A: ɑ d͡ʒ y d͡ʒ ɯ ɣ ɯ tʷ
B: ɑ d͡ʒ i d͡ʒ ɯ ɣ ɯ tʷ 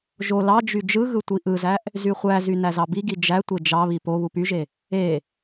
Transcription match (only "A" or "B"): A